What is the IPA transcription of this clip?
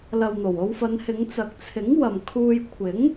l ɐ˨ w n̪ o˨˩ w o˧ w f ɐ˨˧ n h ɪ˨˧ ŋ t͡s ɐ˨ k̚ t͡sʰ ɪ˨˥ ŋ w ɐ˨ m kʰ uː˧ j kʷʰ ɪ˨˥ ŋ

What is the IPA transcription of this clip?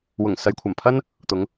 w ʊ˨˩ ŋ s ɐ˨ j kʷʰ ɐ˨˩ m pʰ ɐ˥ n | t̪ ʊ˨˧ ŋ

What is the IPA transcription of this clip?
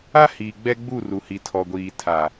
a˦ h iː˨ ɡ͡b ɛ˦ ɡ͡b u˦˨ r u˨ h i˨ tʰ ɔ˨ ɡʷ iː˨ tʰ a˨

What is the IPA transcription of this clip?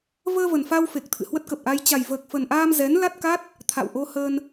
v əː˧ v ə˨˩ n f a˧ w f e˨˩ k̚ t̪ʰ ɨ̰˧˨ h w ə˦˥ t̚ k ə˨˩ p̚ ʔ a˧ j t͡ɕ a˨˩ j v əː˨˩ k̚ f ə˨˩ n ʔ aː˧ m z ɛ˨˦ n l a˦˥ t̚ k a˦˥ t̚ | t̪ʰ a̰˧˨ w ʔ o˧ h əː˧ n

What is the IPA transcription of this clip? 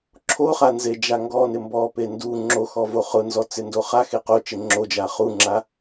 ǁʰ o χ a n z e d͡ʒ a ŋ ɡ ɔ n ɪ m b ɔ p e n d u ŋ͡ǁ o x ɔ v o χ ʊ n z ɔ t͡s ɪ n d o χ a x e q o t͡ʃ ɪ ŋ͡ǁ o d͡ʒ a χ u ŋ͡ǁ a

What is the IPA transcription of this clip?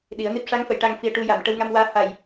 ɗ i˨˩˦ ə̯ n i˦˥ p̚ ʂ a˧˥ ŋ f ə˨˩˨ j ʈ a˧ ŋ f i˧ ə̯ ʈ u˧ j a˨˩˨ m ʈ ə˧ w ŋ a˧ m w aː˧˥ h a˨˩ j

